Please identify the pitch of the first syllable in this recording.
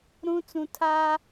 high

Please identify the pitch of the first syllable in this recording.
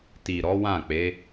low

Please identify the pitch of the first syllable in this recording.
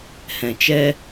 low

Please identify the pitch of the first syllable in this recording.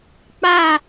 falling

